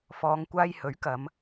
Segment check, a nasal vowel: absent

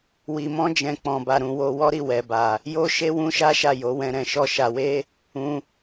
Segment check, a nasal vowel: present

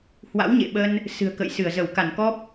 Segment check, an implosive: present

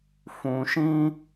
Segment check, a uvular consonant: absent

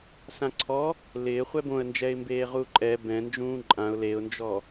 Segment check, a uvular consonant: present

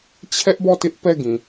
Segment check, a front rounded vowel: absent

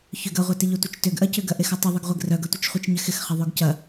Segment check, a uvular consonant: present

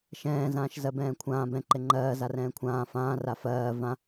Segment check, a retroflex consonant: absent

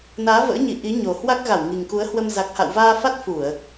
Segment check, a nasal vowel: absent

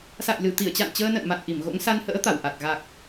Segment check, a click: absent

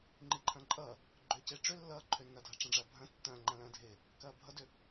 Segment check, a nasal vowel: present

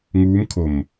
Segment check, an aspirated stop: present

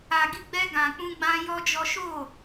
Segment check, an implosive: absent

